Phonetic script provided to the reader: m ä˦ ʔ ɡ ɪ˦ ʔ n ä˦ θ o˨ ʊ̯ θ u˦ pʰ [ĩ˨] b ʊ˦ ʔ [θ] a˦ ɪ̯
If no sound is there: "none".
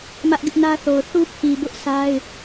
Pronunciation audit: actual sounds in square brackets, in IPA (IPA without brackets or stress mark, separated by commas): i˨, s